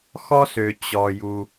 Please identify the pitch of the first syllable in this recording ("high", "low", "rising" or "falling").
high